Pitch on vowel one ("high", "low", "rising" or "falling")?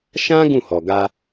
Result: high